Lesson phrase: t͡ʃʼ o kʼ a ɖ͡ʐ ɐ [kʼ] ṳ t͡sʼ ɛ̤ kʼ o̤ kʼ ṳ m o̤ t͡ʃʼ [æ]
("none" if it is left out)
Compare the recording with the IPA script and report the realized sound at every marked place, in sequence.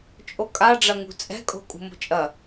ŋ, ɐ

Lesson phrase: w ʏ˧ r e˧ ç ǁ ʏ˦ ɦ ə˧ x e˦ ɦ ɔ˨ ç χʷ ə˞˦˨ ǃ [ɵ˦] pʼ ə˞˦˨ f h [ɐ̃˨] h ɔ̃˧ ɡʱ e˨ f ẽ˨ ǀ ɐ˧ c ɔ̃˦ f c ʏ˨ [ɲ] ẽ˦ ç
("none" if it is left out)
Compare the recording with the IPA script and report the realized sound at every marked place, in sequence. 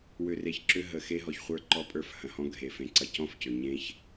ɔ˦, ɐ̃˨, ɲ

